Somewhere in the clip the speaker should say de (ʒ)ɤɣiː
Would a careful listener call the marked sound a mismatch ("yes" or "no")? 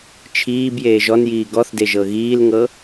no